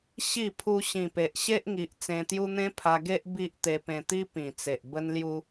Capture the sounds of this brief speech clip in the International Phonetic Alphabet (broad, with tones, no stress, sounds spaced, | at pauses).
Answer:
ɕ i˥˧ pʰ u˧ ɕ ĩ˨˩ p e˨ ʔ ɕ e˦ ʔ ŋ i˨ ʔ t͡s ẽ˧ t̪ j u˦ n̪ ẽ˦ pʰ a˧ ɡ e˦ ʔ b i˦ ʔ t̪ e˧ p ẽ˧ t̪ i˦ p ĩ˨˩ t͡s e˨ ʔ b ə˧ n l j u˧